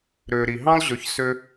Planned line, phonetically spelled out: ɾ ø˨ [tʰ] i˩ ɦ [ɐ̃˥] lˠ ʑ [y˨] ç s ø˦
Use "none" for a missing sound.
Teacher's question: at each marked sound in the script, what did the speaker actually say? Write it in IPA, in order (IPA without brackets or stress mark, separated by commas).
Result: ɾ, ɑ̃˥, ø˨